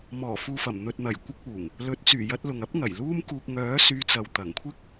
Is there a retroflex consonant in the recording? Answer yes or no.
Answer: no